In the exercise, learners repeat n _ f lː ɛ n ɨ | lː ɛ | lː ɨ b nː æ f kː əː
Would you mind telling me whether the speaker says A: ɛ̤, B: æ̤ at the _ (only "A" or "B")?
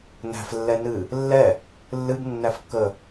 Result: B